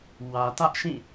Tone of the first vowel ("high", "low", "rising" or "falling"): low